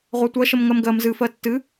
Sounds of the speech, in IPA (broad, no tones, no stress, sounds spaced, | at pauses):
ʁʷ a tʷ ɜ ʃ ə m ŋ ɜ m ɡ ɜ m z ɨ f ɜ tː ɨ